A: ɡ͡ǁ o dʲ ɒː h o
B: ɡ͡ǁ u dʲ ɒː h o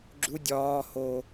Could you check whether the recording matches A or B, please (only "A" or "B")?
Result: B